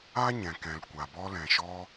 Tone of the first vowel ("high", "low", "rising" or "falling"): high